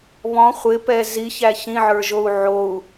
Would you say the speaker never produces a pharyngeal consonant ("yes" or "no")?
no